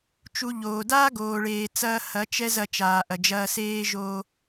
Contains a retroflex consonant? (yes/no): yes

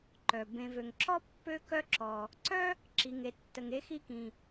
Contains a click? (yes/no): yes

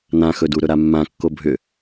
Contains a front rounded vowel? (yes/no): yes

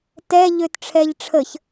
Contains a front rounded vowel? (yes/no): yes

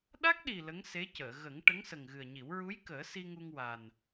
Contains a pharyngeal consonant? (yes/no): no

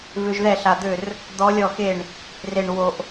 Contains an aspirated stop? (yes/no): no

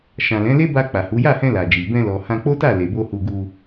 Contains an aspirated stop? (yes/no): no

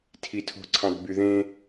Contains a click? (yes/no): yes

